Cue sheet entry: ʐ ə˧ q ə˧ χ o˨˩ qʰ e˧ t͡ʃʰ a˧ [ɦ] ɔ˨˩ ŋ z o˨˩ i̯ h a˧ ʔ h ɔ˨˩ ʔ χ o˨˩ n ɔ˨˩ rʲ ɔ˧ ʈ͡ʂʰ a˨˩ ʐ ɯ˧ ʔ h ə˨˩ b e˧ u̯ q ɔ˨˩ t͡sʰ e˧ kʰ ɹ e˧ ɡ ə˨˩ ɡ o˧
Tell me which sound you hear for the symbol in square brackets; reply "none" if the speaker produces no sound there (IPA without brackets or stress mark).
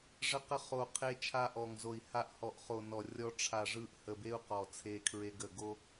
ʔ